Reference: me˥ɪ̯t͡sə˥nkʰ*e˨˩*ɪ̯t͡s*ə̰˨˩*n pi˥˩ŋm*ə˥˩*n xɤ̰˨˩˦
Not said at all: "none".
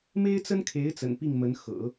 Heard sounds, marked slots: e˧˥, ə̰˨˩, ə˧˥

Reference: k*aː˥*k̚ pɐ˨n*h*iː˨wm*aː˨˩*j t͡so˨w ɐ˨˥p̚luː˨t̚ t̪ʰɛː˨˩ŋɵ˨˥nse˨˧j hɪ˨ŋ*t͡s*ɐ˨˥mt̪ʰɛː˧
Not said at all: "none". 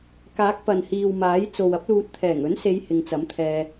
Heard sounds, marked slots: aː˨˥, h, aː˨˥, t͡s

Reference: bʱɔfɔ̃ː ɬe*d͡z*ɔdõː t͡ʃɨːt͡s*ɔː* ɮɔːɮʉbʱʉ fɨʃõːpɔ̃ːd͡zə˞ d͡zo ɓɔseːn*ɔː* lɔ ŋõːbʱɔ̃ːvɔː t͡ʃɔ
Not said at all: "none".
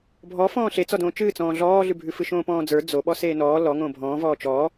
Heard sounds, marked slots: t͡s, ɔ̃ː, ɔː

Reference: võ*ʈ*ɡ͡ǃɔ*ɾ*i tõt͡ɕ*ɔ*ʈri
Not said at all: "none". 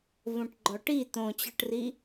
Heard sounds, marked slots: ʈ, ʈ, ɔ

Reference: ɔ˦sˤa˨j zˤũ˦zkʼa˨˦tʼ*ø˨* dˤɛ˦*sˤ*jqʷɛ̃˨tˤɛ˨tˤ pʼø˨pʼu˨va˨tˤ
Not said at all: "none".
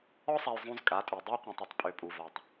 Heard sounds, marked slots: ø˨, none

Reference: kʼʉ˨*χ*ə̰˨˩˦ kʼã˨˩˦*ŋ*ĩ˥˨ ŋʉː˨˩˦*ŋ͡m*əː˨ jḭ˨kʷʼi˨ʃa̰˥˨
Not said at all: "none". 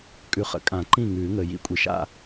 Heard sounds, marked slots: χ, ǃ, ŋ

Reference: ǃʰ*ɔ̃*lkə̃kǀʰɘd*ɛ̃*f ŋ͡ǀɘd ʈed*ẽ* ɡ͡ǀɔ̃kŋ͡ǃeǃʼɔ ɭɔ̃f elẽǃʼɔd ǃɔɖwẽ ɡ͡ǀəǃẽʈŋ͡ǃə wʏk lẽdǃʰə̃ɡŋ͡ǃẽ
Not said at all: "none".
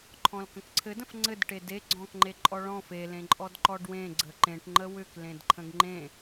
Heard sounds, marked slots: ɔ̃, ə̃, e

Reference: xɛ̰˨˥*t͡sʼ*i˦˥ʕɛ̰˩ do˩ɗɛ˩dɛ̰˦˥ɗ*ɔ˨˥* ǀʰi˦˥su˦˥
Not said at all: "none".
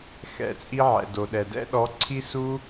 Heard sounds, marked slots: t͡sʼ, ɔ˨˥

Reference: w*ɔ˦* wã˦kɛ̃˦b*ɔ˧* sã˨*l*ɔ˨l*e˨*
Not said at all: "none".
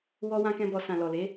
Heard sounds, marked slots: ɔ˦, ɔ˧, l, e˨˦

